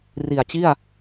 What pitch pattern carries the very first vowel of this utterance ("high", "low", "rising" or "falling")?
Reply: low